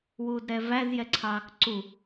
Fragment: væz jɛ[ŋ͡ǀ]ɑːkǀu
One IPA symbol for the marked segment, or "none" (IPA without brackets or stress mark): ǀʰ